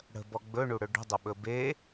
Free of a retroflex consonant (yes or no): no